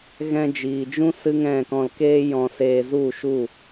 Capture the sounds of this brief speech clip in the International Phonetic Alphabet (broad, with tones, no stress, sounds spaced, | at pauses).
ɣ ɛ̃˧ d͡ʒ iː˨ d͡ʒ ũ˦ s ɨ˦ ŋ ɛ̃˦˨ k ɔ̃˧ l k eː˦ j ɔ̃˧ s eː˧ z u˦˨ ʃ u˦˨